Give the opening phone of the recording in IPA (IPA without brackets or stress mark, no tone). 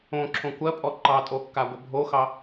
õ